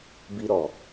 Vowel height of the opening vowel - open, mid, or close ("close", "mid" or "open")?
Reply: close